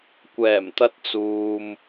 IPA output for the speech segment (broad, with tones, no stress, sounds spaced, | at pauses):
kʷ ɛː˨˩ m t̪ ɐ˧ t̚ t͡s uː˨ m